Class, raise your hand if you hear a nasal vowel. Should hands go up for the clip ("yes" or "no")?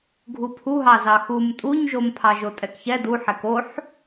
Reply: no